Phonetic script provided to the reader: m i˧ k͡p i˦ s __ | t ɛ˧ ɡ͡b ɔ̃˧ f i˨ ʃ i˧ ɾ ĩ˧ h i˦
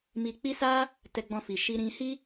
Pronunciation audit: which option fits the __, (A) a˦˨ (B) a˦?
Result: B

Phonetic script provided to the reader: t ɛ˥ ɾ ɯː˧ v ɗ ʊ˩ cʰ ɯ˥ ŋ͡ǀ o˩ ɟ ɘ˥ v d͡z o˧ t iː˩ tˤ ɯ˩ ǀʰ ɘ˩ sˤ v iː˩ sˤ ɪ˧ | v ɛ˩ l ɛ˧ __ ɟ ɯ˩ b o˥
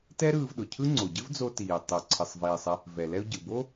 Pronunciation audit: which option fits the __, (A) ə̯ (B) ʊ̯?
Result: B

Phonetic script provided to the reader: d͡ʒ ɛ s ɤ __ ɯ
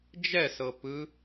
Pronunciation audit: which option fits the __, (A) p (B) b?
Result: A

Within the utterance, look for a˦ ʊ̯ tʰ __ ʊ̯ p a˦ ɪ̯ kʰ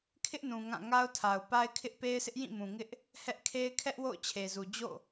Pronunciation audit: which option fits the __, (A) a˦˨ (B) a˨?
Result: B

